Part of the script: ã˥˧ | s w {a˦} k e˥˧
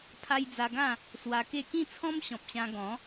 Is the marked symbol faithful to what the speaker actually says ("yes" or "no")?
no